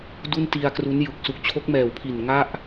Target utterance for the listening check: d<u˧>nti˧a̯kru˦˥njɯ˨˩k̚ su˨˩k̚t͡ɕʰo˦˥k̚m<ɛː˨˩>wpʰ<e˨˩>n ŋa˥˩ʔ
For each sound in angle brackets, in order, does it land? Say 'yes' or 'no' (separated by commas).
no, yes, no